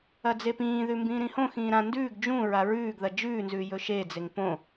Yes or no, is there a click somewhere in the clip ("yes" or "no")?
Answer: no